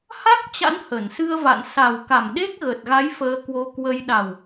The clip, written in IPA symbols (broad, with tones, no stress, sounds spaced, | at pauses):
h a˦˥ k̚ t͡ɕ a̰˧˥ n h ə˧˩ n s ɨ˧ ə̯ v a̰˧˨ n s a˨˩ w k a˧˩ m ɗ e˦˥ k̚ ɣ ə˨˩ t̚ ɣ a˨˦ j f əː˧ k w o˧ k w ə˧ j ɗ a˨˩ w